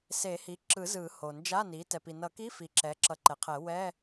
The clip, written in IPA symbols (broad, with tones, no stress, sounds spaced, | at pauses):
s e˨˩˦ h i˩˥ ǁ ɯ˨˩˦ z ɯ˨˩˦ h o˩ n d͡ʒ a˧˥˧ n i˩˥ t ɛ˩ p i˩ n ʌ˨˩˦ k i˧˥˧ f i˩ ǁ ɛ˩˥ ǁ ʌ˨˩˦ ǃ ɛ˩˥ qʰ ɛ˨˩˦ w ɛ˧˥˧